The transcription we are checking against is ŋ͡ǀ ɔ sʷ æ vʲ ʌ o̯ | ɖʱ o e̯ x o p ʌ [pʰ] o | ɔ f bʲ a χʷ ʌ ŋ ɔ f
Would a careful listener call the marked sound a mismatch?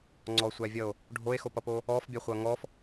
yes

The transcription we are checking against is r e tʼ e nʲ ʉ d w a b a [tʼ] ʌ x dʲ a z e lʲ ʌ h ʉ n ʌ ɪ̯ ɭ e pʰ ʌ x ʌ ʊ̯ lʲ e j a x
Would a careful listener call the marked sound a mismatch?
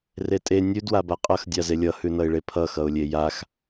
yes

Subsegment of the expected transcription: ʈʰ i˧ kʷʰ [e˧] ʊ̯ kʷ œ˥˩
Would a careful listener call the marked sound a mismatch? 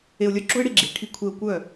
no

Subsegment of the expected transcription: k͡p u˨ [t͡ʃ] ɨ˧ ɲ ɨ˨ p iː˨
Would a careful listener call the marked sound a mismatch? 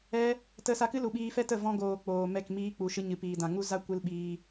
yes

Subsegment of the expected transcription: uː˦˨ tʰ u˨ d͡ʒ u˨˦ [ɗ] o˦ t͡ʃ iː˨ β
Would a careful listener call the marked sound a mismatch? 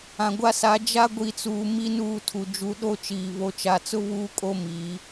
no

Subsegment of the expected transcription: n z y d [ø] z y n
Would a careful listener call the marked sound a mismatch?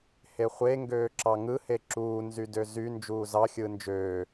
no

